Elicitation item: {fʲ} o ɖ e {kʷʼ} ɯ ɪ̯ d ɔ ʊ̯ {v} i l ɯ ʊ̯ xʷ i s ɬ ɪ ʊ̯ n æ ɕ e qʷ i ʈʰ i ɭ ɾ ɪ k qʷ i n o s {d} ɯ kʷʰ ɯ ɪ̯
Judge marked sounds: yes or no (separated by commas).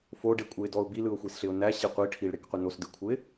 no, yes, no, yes